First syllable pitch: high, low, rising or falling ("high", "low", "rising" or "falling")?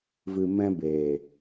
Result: low